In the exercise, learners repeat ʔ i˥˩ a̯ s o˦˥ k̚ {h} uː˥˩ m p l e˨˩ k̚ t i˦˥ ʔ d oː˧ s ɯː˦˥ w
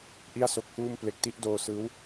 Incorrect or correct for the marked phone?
correct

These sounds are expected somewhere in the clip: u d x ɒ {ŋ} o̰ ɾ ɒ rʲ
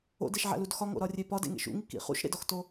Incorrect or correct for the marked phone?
correct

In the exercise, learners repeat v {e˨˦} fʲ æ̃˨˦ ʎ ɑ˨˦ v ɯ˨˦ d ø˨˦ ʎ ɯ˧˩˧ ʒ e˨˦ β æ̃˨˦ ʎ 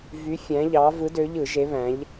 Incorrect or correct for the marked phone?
incorrect: y˨˦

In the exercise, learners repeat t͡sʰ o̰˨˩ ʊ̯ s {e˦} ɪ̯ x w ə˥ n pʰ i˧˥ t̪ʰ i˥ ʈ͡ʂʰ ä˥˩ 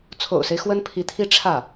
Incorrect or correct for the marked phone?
correct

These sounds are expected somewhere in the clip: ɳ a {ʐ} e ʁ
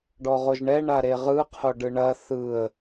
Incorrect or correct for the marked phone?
incorrect: ɾ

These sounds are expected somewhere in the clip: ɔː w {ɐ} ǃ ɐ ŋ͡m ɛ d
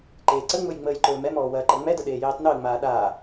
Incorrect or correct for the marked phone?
incorrect: ɐː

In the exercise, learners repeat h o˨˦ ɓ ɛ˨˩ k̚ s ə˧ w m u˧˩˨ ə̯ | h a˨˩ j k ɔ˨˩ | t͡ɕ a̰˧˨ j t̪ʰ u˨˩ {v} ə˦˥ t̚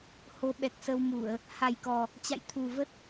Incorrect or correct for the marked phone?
correct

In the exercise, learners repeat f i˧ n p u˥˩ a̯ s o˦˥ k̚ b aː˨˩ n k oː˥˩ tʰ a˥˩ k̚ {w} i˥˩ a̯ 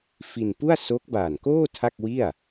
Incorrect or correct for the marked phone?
correct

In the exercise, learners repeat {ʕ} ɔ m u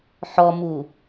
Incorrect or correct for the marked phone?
incorrect: ħ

